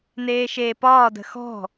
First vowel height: mid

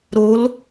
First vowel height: mid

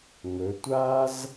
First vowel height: mid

